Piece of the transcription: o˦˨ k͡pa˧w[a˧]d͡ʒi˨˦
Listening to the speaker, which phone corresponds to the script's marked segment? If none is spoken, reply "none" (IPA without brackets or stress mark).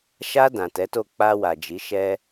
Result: a˨